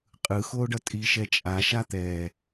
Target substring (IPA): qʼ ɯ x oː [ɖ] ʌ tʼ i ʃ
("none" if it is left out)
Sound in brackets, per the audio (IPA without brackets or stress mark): ɖ